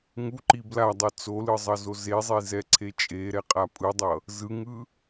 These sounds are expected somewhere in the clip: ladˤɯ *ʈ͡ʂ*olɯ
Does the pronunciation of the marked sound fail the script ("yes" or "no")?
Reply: yes